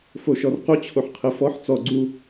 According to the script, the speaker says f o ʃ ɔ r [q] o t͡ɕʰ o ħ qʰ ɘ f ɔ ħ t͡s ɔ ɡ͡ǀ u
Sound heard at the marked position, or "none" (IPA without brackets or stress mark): q